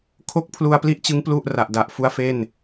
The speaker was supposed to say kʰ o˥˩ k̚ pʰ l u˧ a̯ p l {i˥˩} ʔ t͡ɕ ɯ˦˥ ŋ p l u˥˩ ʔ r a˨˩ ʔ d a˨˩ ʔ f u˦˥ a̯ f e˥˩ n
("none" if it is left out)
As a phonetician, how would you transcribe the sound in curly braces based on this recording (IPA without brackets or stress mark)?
i˥˩